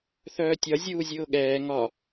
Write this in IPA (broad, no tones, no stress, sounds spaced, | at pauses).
θ œː tʲ ɒ zʲ uː zʲ ʊː ɠ ɛː ŋ ɒ